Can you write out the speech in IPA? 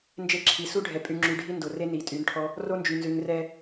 n d͡ʒ e˧ ǁʰ i˨ s u˦ ɖʱ ɛ˨ pʼ y˨ ŋ͡ǁ y˨ ɖʱ i˧ n d o˨ r e˦ n i˨ tʼ y˨˦ n ʈʰ ɔ˦ | r o˧ n d͡ʒ y˨ n z ʉ˨ ŋ r ɛ˧

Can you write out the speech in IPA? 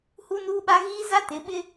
h u˦ n uː˦ ɓ a˦ ɣ iː˦ z a˦ t ɪ˨˦ ɓ ɪ˦

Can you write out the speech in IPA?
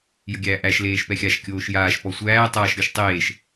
j ə ɡʲ æː ʔ æ ʃ l eː ʃ p ɛ xʲ a ʃ kʲ oː ʃ j aː ʃ p ɔ sʷ æː tˤ aː ʃ ɾʲ ɔ ʃ tˤ eː ʃ

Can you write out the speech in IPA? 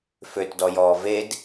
f ø t d ɔ j ɔː v e d

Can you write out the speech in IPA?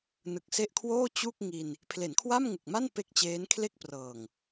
n ɯ˨˩ k̚ s e˦˥ ʔ kʰ w oː˥˩ t͡ɕ u˥˩ k̚ ŋ i˧ n | pʰ l e˩˦ n kʰ w a˥˩ m ŋ u˨˩ k̚ m a˥˩ n p e˥˩ k̚ t͡ɕ eː˦˥ n kʰ l e˥˩ k̚ p r ɤː˨˩ ŋ

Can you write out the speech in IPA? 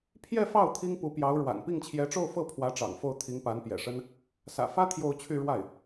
pʰ j ɛ˥˧ f ɑ˥˩ ʊ̯ t̪ʰ i˥ ŋ p u˧˥ p j ɑ˧˥ ʊ̯ ɻ w a̰˨˩ n p i˥˩ ŋ t͡ɕʰ j ɛ˧˥ ʈ͡ʂ o˥˧ ʊ̯ f ɤ˥˩ pʰ w ä˧˥ ʈ͡ʂ ɑ̰˨˩ ŋ f o˥˩ ʊ̯ t̪ʰ i˧˥ ŋ p a˧˥ n p j ɛ̰˨˩ ʂ ə˥ n | s ä̰˨˩ f ä˥ t̪ʰ j o˥˧ ʊ̯ t͡ɕʰ y˥˧ ɻ w a˥˩ ɪ̯

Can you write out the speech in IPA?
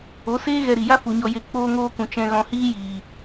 o˨˦ s eː˦ ɣ ɛ˧ ɾ i˨ j a˦ f u˨ ɲ ɔ˧ j e˧ k͡p oː˧ ŋ oː˧ k ũ˨ t͡ʃ ɛ̃˧ ɣ ɔ̃˧ h iː˦ j iː˨

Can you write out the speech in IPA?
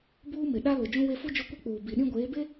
b uː˦ m ɪ˨ ɗ a˦ l ʊ˨ d͡ʒ ũ˦ w e˦ f u˦ d͡ʒ o˦ kʷ e˦ k͡p uː˨ b i˨ ɗ ĩ˦ ɡʷ eː˨˦ b e˦

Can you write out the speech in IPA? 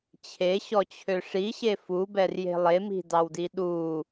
t͡ɕʰ e ɕ ɔ t͡ɕʰ ø ʂ i ɕ e f u b ɛ r j e̤ lˠ e m i̤ d ɑ w d i ɗ u

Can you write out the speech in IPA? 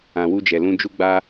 ã˨ w u˧ d͡ʒ ɛ˨ l ũ˧ d͡ʒ u˦ ɡ͡b a˦

